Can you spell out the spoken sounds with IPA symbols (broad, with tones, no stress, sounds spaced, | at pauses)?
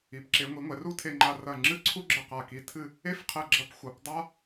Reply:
i˩˧ p ǁ e˩˧ ŋʷ i˩˧ ŋʷ ɛ˩˧ r u˥ tʰ e˧ ŋ͡ǃ a˧ r ɐ˧˩ ŋ͡ǁ ɨ˥˧ ǀʰ u˥ ɡ͡ǁ ɘ˧˩ q a˧˩ k i˧˩ tʰ ɨ˥˧ | e˥ f qʰ ɛ˧˩ ɡ͡ǁ ɐ˧ p xʷ ɐ˩˧ p dˤ a˥